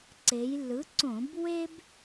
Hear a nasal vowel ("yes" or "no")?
yes